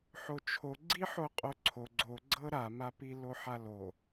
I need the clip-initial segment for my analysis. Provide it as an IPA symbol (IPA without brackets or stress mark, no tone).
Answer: ħ